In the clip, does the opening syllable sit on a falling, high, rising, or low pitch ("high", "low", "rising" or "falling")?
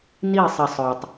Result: falling